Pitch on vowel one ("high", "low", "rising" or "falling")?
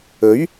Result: rising